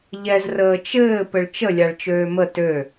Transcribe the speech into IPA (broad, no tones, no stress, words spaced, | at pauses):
ʎɛz rəːt͡ʃɘː pɘɭt͡ʃə lʲaɭt͡ʃøːmə tø